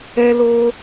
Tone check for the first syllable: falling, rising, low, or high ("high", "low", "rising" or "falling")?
high